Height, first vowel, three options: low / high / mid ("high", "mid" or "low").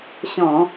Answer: mid